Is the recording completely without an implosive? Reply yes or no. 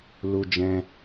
yes